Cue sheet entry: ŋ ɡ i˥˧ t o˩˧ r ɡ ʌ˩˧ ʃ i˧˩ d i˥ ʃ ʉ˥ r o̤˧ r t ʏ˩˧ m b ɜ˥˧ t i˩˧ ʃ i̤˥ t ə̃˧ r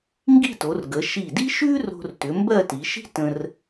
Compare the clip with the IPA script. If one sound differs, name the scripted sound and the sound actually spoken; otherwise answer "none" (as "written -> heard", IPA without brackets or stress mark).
ʌ˩˧ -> ə˩˧